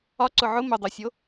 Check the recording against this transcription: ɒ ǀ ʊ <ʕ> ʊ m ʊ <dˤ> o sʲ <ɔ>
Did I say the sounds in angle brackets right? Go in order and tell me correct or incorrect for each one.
correct, correct, incorrect

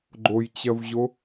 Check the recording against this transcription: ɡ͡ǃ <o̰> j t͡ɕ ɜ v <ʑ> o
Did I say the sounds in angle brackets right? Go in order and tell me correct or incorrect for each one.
incorrect, correct

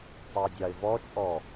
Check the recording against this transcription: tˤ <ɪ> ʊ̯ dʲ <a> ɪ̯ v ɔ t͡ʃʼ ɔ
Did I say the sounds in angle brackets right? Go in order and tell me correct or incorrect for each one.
correct, incorrect

